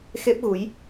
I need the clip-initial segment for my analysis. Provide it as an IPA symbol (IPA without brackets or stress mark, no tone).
x